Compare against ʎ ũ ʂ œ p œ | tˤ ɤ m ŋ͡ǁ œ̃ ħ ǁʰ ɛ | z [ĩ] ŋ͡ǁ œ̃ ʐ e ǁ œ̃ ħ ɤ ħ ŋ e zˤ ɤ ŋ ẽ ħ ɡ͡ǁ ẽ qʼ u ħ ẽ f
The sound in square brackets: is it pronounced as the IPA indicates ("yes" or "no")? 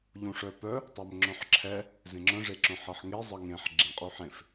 no